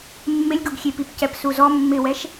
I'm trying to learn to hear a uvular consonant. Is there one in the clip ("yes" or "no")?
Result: no